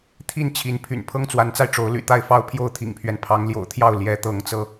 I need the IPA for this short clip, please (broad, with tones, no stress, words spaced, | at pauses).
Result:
t̪ʰi˦nt͡ɕʰi˨˦npʰy̰˨˩n pʰɤ˦ŋt͡swa˨˦nt͡sa˧ɪ̯ ʈ͡ʂo˨˦ʊ̯ly̰˨˩t̪a˥˨ɪ̯ fɑ˦ʊ̯pʰjo˥˨ʊ̯t̪ʰḭ˨˩ŋpʰɥɛ˦n pʰɑ˨˦ŋljo̰˨˩ʊ̯t̪ʰjɑ˥˨ʊ̯ ljɛ˨˦t̪ɤ˨˦ŋt͡sɤ˧